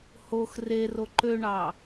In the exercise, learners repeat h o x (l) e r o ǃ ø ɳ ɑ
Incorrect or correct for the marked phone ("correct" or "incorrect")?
incorrect